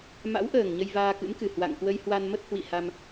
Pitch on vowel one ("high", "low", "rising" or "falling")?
rising